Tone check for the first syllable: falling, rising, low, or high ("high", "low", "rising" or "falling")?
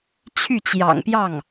falling